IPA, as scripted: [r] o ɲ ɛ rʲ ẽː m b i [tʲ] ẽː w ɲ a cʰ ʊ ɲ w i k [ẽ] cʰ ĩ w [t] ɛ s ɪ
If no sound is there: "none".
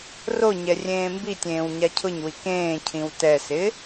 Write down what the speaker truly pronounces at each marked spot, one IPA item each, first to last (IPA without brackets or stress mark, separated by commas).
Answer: r, tʲ, ẽː, t